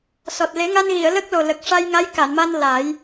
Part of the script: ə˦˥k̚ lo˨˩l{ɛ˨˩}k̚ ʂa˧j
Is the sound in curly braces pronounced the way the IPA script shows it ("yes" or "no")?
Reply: no